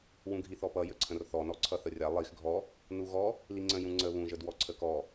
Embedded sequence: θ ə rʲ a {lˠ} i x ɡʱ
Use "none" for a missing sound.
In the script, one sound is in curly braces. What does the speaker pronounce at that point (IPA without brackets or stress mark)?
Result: lˠ